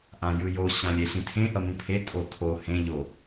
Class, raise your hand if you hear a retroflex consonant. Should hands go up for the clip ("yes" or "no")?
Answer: no